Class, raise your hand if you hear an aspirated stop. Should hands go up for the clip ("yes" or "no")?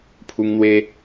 yes